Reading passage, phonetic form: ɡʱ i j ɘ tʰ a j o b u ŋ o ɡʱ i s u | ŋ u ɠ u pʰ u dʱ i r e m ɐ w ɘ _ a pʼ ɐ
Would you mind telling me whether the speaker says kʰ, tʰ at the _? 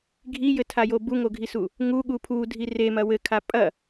kʰ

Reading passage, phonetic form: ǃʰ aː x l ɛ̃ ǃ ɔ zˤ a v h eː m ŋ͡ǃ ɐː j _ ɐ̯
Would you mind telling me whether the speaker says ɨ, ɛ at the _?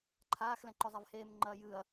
ɨ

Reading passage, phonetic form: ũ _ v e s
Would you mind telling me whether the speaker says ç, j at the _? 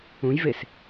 j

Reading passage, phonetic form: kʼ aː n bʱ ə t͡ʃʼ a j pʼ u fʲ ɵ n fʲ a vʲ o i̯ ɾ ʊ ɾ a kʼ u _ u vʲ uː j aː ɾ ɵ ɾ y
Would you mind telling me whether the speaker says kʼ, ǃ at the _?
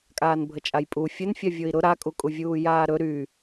kʼ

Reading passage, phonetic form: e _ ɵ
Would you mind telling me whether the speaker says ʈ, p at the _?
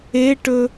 ʈ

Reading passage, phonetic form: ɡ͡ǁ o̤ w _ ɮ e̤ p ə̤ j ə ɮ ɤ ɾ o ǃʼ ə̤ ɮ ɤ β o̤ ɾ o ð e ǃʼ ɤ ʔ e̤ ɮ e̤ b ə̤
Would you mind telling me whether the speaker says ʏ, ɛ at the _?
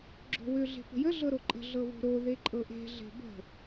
ʏ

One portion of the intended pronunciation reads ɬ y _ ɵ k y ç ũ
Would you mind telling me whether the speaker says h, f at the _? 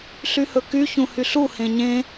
h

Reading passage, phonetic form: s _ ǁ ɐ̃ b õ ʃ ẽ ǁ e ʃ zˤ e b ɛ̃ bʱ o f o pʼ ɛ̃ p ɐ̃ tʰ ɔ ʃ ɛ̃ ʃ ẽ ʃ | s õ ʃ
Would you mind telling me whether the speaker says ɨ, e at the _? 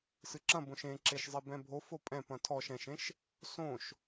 ɨ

